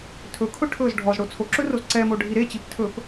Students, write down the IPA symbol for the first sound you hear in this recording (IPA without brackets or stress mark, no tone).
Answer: tʰ